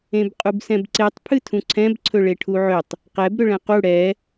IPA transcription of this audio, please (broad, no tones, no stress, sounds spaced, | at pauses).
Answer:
ẽ b qʼ u b s ɛ̃ b ǀ e tˤ pʰ ɨ tʰ ũ ǀʰ ɛ̃ b ǀʰ ɵ ɭ e ʈʰ u ʕ ʏ tˤ | q ɛ b ɾ ʏ ɭ ɛ̃ q u ɽ ɛ